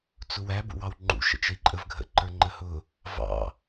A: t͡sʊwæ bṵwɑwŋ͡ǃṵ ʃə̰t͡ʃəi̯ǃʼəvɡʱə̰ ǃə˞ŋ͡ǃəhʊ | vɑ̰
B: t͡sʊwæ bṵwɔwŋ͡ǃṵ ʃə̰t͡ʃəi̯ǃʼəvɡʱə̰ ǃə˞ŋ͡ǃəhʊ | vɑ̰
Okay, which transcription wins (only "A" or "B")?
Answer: A